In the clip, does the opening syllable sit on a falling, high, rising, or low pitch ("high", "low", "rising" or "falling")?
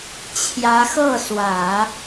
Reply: rising